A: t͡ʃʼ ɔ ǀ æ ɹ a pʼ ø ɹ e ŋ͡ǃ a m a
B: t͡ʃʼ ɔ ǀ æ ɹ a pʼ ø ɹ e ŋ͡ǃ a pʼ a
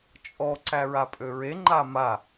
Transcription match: A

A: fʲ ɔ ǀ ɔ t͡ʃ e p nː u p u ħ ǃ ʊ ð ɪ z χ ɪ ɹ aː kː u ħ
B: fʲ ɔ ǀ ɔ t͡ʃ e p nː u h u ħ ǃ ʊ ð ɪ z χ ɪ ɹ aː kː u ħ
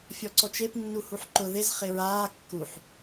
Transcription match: B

